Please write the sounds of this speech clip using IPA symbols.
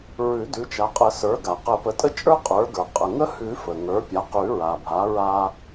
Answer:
ɹʉ˨˩˦dʉ˩˥t͡ʃa˩˥qʼə˨˩˦ sə˞˩˥ɡa˩ qə˨˩˦pə˩˥tʼə˦t͡ʃʼə˞˦ qʼə˞˩˥ɡə˞˩ qʼə˩ŋə˦hʉ˨˩˦ fə˩ŋə˞˩˥pʲa˩˥qʉ˨˩˦ ɹa˩bʱa˩˥ ɹa˦

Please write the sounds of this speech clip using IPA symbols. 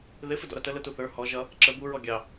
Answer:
ðɪ fɪdɔ̰ɾʌtə lətuθə˞ hɔ ʒʌ | ǁə buɹɔ ɡʲɑ

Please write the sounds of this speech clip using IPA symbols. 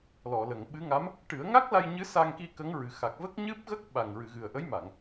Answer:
lɔ˨˩˨lə˨˩˨ŋɓɨ˧˥ŋa˧˥m | ʈɨ˨˩˦ə̯ŋa˦˥k̚la˧j ɲɨ˧˥ sa˧ŋki˧ kə˧˥ŋɹɨ˨˩xa˨˩k̚ və˦˥k̚ɲɨ˦˥p̚ɣə˦˥k̚ ɓa˨˩ŋɹɨ˨˩˨ ɣɨ˨˩ə̯ʔə˧˥jma˨˩˨ŋ

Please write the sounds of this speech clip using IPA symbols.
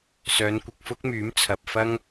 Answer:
sœː˨˧nkʷɪ˨k̚fʊ˥k̚myː˨˥m t͡sʰɐ˨p̚fɐ˥ŋ

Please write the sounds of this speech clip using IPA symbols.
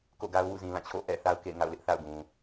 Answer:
ko̰˦˨ɡa˦ʊ̯wṵ˦˨ zĩ˨lã˦˨ t͡ɕʰo̰˦˨ʔɛ̰˦˨θa˦ʊ̯ kḛ˦˨ɪ̯ŋa̰˦˨ʊ̯lɪ˦ʔ θa̰˦˨ʊ̯ɡũ˨

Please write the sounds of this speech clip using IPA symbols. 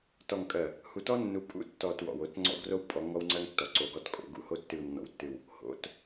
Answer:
tɔ˨ŋkʼɜ˨ | hu˨tɔ˦ nːu˨pʼṵ˦tːɔ˨t wɔ̰˨wo˦t ŋ͡ǀɔ̰˦ ɡro˦w pʼɔ˨˦ŋɔ˦wŋ͡ǀɜ˦ŋ tːɔ˨ǀo˨ɡɔ˦˨t kʼo̰˨ɡṵ˦˨ho˦ tːɨ˨wnːɔ̰˨wtːɨ˨w | ho̰˨t

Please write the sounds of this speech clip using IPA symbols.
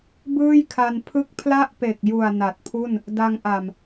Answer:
bɯː˥˩jkʰa˧npʰɯ˥˩k̚ pʰla˥˩ʔpe˨˩k̚ju˨˩a̯ na˨˩t̚pʰu˥˩n | da˧ŋʔa˨˩m

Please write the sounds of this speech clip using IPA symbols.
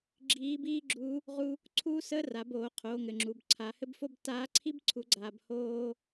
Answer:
ɡ͡ǁiː˧˥biː˥ɡ͡ǁu˧˥ | ʁu˥ | ǀʰuː˥səː˥ra˩˧boː˩˧ qʰoː˩˧ŋɘ˩ŋ͡ǁu˩bǀʰa˩˧ hɘ˥bfo˥b taː˧˥ǀʰi˥b ǀʰu˩˧ɡ͡ǀaː˩bhoː˧

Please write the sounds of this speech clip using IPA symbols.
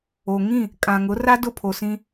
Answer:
o˨ŋĩ˦˨ | kʼã˨ŋʊ˨˦ra˦ dʊ˦pʰo˨sĩ˦

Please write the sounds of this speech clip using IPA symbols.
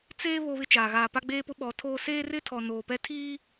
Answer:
t͡seː˦ βo˦βɪ˦t͡ʃaː˨ ɣaː˨pa˦ɡ͡beː˦pʊ˦ ɓɔ˨˦ tʰoː˦ seː˦rɪ˦tʰɔ˨ noː˨pɛ˦ tʰiː˦

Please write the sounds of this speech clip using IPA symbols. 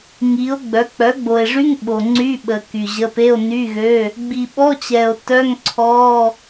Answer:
ŋi˩˥o̯ɡ͡bœ˩˥ k͡pœ˩˥ɡ͡bo˨e̯ʐy˧˥˧ŋ ɓo˨ŋ͡ǀy˧˥˧ɓə˨ ky˨ʑə˧˥˧ pe˧˥˧o̯ny˧˥˧ɣø˧˥˧ | ɡ͡bi˨ɓɔ˧˥˧t͡ɕɛ˨o̯ tœ˧˥˧ŋ ǀʰɔ˧˥˧

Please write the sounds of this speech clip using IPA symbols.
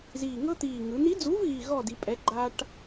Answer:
ziː˨˩ŋɤ˦t̪iː˨˩ ŋɯ˩˧ni˨˥d͡zu˨˥vɣi˨˩ ɣɔ˥˨di˩˧pʼɛ˨˥ ɡ͡ǃa˦ʈ

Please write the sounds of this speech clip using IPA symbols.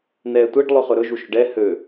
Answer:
nɛːtʷɛɖ lˠɵχɵɾɵ ʒuʃɵɖɛ hø

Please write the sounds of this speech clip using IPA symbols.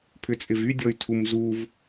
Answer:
pʰʏt͡sʼɪvydʲɔy̯ tʰumzuv

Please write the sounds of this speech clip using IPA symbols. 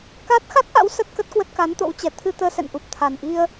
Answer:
kaː˦˥t̚ xa˦˥k̚ʔa̰˧˥w sə˦˥t̚kə˦˥t̚kwə˦˥t̚ ka˨˦nt̪o̰˧˥wt͡ɕɛ˧˩ t̪ʰɨ˧t̪əː˧ sɛ̰˧˨nʔu˨˩p̚ t̪ʰa˨˩nʔi˧ə̯

